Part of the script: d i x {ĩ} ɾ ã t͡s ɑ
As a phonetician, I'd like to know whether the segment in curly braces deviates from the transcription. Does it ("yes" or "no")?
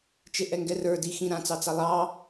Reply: no